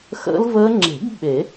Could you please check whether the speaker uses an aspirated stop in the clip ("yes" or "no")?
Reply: no